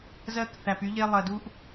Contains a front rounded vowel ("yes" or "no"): yes